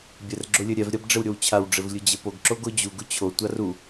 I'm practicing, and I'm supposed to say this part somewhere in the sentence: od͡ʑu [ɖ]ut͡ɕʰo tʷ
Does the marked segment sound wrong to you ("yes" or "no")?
yes